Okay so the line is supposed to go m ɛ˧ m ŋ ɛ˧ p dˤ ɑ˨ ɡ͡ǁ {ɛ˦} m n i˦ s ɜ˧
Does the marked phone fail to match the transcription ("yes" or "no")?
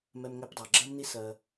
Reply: yes